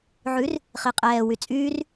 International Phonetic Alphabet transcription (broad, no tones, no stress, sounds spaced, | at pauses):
ʕ ʉ r | χ i qʼ ɛː w y t͡sʼ yː r